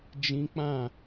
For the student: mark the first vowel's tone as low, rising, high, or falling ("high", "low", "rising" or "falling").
high